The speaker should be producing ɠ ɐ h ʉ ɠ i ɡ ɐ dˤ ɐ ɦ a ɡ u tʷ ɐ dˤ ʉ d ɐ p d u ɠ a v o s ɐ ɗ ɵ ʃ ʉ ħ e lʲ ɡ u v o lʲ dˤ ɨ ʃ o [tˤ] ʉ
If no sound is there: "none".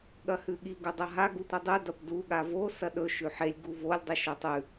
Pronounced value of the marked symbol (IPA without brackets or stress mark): tˤ